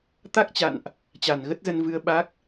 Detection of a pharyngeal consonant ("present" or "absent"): absent